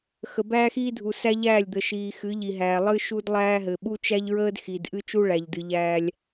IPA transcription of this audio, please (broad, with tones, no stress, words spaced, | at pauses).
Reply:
xə˨bæː˦xiː˦dʱu˨ sæ˦ʎæː˦˨lʲd̪ə˨ ʃiː˨xɨ˨˦ ʎi˨ɦæː˨ lˠɨ˦ʃu˦dlˠæː˦ɦɘ˨ ɓu˦t͡ʃæ˦ʎɹəː˦d xi˨d ʔɨ˦t͡ʃu˦ ɭæ˨ʎdɨ˨ ʎæː˦lʲ